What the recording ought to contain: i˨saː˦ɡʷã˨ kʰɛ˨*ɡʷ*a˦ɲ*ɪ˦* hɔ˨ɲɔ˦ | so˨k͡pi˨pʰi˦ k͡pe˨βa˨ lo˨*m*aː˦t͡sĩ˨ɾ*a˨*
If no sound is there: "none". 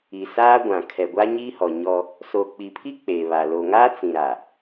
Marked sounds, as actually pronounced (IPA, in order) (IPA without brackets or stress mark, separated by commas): ɡʷ, i˦, ŋ, a˨